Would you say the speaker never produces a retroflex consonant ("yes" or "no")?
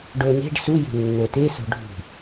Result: no